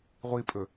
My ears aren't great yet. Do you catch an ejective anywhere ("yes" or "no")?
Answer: yes